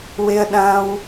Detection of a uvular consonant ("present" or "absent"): absent